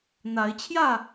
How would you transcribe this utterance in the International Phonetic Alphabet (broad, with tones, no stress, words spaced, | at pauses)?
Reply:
n̪a˨˦ɪ̯ t͡ɕʰjä˥˨